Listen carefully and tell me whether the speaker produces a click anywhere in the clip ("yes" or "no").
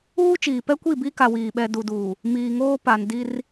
no